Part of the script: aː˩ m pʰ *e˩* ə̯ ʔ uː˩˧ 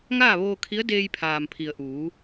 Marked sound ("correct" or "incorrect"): incorrect